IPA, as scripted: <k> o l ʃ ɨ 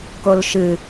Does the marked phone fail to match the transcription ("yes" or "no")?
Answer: no